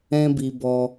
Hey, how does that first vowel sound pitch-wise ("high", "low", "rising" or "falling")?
high